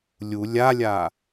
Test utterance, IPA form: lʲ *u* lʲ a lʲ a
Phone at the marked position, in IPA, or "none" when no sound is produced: u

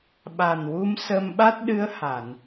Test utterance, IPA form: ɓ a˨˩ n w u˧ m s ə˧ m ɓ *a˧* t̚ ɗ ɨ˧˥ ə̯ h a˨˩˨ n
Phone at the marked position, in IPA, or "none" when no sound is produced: a˦˥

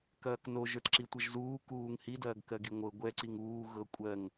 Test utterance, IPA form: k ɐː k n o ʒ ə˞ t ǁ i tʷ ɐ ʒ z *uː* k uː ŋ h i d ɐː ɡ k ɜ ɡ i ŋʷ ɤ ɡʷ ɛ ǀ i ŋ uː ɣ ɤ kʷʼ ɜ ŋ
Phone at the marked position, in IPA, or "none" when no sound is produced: uː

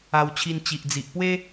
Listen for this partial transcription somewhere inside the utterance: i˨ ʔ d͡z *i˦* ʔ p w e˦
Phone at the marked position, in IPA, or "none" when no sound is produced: i˨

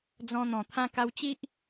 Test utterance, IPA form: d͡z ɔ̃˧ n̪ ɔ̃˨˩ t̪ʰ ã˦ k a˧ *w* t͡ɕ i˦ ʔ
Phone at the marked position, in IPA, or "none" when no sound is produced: w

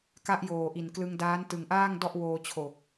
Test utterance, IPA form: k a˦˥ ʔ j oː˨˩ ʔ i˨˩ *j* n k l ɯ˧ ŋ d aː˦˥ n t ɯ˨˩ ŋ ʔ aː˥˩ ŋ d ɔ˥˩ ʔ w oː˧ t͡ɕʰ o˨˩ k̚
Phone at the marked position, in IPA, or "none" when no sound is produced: none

